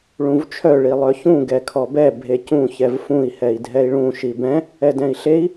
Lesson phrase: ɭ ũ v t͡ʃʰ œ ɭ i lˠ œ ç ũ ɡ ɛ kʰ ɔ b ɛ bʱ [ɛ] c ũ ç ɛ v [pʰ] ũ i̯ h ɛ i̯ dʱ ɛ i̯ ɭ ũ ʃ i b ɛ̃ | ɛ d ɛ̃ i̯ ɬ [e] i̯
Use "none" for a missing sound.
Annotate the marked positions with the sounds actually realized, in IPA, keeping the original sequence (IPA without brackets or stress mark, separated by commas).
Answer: e, f, e